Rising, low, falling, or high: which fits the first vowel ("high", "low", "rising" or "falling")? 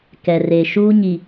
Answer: low